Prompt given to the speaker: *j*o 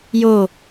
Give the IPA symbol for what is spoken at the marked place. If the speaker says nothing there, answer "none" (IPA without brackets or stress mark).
j